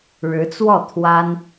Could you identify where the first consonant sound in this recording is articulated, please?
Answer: retroflex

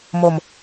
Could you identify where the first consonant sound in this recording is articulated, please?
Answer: labial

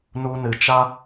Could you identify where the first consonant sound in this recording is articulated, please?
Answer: alveolar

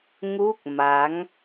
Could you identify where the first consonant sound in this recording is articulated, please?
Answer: velar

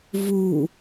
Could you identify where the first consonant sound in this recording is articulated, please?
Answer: labial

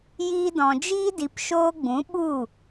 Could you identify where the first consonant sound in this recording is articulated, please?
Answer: palatal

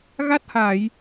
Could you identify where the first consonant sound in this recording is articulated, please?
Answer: velar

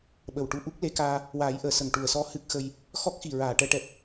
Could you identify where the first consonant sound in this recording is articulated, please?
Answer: labial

